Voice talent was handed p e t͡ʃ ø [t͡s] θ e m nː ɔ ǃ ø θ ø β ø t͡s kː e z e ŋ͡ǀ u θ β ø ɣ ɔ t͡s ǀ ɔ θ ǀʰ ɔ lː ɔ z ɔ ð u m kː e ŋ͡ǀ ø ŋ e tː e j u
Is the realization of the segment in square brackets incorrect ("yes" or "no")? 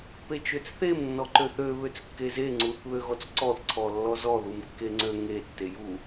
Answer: no